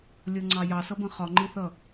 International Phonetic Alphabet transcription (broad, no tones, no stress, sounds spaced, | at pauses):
lʲ ʌ ŋ͡ǀ ɑ j ɑ s ʌ b ə̃ χ ɒ ŋ͡ǃ ɪ θ ʌ